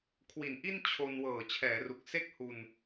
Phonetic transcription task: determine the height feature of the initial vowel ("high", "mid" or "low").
high